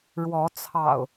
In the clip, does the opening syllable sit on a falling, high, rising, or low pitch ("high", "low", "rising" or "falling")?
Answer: rising